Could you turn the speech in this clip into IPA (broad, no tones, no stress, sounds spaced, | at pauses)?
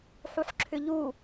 ħ u ħ ǁʰ ʏ ʎ u